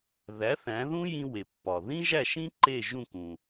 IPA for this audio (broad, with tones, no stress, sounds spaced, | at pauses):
ð æ˩˥ θ æ̃˩˥ ð ũ˥ j ĩ˧ w e˩ pː ɒ˩ ð ĩ˥ ʒ æ˥˩ ʃ ĩ˥ ǃ e˥˩ ʒ ũ˥˩ k ũ˩